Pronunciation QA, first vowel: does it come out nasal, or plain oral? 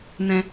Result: nasal